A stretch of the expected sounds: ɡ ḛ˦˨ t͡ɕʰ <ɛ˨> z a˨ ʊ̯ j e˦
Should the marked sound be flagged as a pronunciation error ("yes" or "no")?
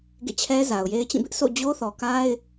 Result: yes